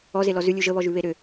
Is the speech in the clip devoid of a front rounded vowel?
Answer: no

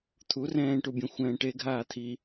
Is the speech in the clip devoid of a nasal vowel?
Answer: no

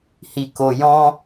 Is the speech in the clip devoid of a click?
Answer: yes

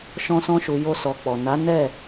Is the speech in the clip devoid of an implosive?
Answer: yes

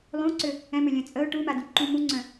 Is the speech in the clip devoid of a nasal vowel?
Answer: no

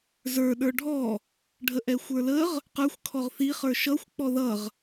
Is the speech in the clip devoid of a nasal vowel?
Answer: yes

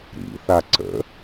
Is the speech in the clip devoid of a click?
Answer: no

